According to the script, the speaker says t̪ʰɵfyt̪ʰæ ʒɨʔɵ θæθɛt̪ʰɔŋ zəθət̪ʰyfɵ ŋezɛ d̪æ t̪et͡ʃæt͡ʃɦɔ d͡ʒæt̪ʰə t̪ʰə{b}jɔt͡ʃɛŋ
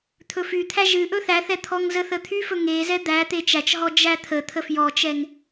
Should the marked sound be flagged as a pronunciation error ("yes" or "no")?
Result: yes